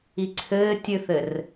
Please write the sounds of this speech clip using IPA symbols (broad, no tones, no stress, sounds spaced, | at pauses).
i ǀʰ ɘː tʲ ɨ θ ɘ r